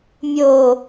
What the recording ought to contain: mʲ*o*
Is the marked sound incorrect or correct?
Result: correct